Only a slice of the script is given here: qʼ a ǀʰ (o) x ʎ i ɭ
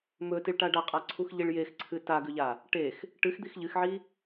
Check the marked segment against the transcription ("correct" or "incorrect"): incorrect